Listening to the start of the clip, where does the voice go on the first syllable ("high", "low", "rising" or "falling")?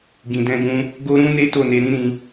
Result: low